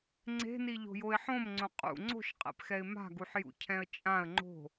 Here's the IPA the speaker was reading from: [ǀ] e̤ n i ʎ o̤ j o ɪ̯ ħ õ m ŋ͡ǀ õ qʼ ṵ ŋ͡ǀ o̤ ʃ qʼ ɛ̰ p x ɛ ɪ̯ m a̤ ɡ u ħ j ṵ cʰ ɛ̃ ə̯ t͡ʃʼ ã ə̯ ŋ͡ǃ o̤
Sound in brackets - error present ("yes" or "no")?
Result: yes